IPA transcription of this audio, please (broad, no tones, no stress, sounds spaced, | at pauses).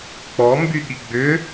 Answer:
k͡p ɔ m b y ɠ i ɡ͡b ʏ